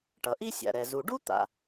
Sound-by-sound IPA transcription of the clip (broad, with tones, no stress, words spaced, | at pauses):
ʈʌ˩ʔi˥ sʲa̰˩ɾɛ˩ zu˩ɖu˥t̪a̰˩